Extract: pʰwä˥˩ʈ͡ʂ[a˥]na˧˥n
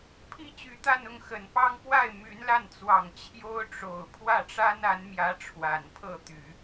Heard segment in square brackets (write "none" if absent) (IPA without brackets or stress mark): a˥